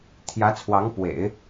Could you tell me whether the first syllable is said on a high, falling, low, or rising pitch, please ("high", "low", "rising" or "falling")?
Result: rising